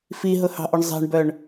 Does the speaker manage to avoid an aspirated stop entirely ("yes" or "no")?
yes